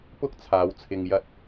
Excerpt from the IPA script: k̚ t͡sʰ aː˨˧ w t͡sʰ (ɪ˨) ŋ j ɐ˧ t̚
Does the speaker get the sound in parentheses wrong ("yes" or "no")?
no